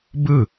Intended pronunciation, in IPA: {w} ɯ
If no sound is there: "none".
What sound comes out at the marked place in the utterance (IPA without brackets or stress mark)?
b